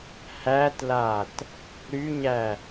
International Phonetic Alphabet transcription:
hætlat | ɾyɲæ

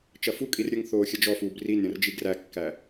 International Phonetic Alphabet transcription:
t͡ʃɐfukʼir ɾʲəŋθoː xʲɐd͡ʒɔfuːb rin ɾʲɐ̃rd͡ʒiɡrækːæ

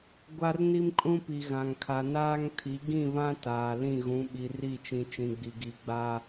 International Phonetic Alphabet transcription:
ɡʷa˦rni˦mkʼũ˦pi˨ ɣã˨ŋkʰa˨ naː˦ŋtʰi˨˦ ɡĩ˦˨βã˦ taː˨ lĩ˦˨ɣũ˨˦ ɓi˨ri˦˨t͡ʃĩ˨ t͡ʃĩ˨ɡ͡bi˨ ɡi˨ɡ͡ba˦

